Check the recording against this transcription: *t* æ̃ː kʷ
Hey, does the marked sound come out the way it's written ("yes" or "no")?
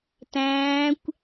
yes